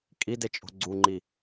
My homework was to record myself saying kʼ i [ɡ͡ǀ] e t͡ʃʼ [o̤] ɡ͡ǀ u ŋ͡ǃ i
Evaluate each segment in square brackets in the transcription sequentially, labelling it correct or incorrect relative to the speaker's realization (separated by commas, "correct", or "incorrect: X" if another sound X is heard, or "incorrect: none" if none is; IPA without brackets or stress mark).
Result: incorrect: d, correct